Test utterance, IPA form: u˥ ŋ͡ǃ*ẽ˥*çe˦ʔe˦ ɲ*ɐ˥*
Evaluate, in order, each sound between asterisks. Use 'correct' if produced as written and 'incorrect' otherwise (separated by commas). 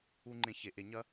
correct, correct